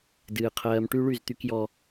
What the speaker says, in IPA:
d ɨː˨ qʰ ɜː˨ m ʈ y˦ ɭ y˦˨ z t̪ y˦ k j ɔ˦

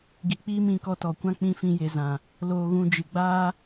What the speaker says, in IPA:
ɡ i˨ k͡p iː˦ m ĩ˧ k ɔ˧ t ɔ˨ kʷ ã˦ k͡p ĩ˦ f ĩ˦ j e˧ z ã˨ | l oː˧ ɣ ũ˧ d͡ʒ ɨ˨ ɡ͡b aː˦

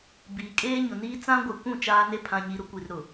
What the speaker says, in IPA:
b iː˨ kʼ eː˦ ɲ ʊ˨ n iː˦ t͡s ã˦ ɡʷ e˨ kʷ ũ˦˨ t͡ʃ aː˦ n e˦ pʰ ã˨ ɲ i˨ ɾ ʊ˦ kʷ i˨ r ɾ ʊ˨

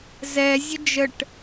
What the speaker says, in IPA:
z ɛ zʲ ə d͡ʒ ə ʈ

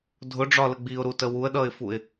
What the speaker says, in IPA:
dʱ ʊ ɖ͡ʐ ɒ l ə ɡ͡b i ʊ̯ ɾ u t ə w u ə̯ ɗ ʌ ɪ̯ f u ɪ̯

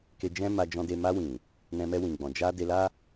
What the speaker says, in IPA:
k e˧ d͡ʒ ɛ̃˦ m a˧ d͡ʒ ɔ̃˧ d e˧ m a˧ w ĩ˨ | n ɛ̃˧ m ɛ˧ w ĩ˨ ɡ͡b ɔ̃˨ d͡ʒ a˧ d e˧ l a˦

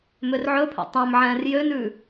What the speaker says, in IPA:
m ø r ʕ ɵ pʰ ɛ̰ tˤ æ̃ m ʕ ɛ̃ː r j ø n ʉ

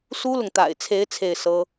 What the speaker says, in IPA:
s u˥ l ʊ˨ ŋ t̪ a̰˨˩ ɪ̯ t͡sʰ e˧˥ ɪ̯ t͡sʰ e˥˩ ɪ̯ s ɤ˥

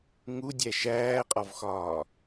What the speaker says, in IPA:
ŋ u dʲ æ ʃ æː qʼ ɒ v x ɒː

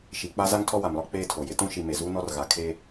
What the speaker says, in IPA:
ʃ i˨ k͡p a˦ z a˦ ŋ tʰ ɔ˦ w a˨ m l ɔ˦ k͡p eː˦ tʰ o˨ j ɪ˦ t ũ˦ ʃ i˨ m e˨ z uː˦ n ɔ˦ r ɣ a˨ kʰ eː˦

